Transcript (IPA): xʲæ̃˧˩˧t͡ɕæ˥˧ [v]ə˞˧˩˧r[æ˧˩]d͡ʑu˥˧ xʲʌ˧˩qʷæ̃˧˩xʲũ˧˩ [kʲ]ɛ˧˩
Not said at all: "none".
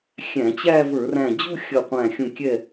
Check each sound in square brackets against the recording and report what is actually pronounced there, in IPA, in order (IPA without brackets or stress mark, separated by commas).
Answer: v, æ̃˧˩, kʲ